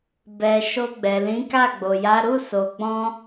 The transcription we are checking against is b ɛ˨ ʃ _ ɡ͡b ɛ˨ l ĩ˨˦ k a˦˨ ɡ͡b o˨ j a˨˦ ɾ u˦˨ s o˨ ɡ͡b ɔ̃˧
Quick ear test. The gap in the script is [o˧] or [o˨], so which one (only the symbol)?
o˧